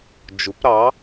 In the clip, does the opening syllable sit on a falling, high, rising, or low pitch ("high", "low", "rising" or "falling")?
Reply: rising